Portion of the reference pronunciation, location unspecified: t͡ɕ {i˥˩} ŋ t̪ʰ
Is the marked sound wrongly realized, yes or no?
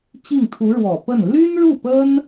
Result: no